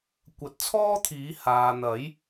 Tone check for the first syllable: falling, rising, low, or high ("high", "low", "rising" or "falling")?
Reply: rising